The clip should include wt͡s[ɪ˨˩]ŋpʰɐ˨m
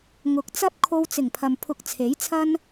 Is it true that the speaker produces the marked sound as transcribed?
yes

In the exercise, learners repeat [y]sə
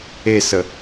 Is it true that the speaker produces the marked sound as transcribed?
no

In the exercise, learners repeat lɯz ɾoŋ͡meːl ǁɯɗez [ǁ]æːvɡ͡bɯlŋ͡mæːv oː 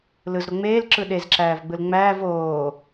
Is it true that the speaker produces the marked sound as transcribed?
yes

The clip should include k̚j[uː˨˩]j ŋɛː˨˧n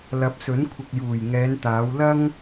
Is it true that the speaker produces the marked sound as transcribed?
yes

